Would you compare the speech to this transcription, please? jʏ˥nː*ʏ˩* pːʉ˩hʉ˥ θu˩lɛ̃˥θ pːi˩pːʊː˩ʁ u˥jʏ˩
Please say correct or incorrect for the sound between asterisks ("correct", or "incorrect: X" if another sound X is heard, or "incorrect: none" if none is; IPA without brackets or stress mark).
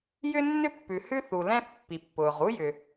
incorrect: ʏ˥